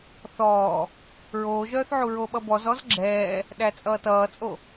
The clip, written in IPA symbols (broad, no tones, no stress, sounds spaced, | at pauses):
θ ɔː | ɹ oː ʒ œː θ ʕ u ɹ o ɓ ʌ b ɔ z ɔ z ɡ͡ǁ ɛː | ɗ æ t͡sʼ ʌː t ʌː t͡sʼ o